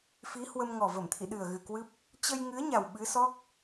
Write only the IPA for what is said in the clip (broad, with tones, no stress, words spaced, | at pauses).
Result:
fi˨˦hwə˧m ŋɔ˨˩və˧˩mt̪ʰḭ˧˨ ɗɨ˨˩ə̯ɣɨ˨˩ kwɨ˦˥p̚ | t͡ɕə˧jŋɨ˨˦ə̯ɲa˨˩w ɓɨ˨˦sɔ˦˥k̚